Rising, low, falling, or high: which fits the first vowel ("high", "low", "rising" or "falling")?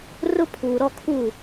high